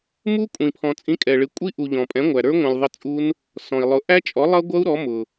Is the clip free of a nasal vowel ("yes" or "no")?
no